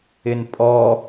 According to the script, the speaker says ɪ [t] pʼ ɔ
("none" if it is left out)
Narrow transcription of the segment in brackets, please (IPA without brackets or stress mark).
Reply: n